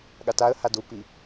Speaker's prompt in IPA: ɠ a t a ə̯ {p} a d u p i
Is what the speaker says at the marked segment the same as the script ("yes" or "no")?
no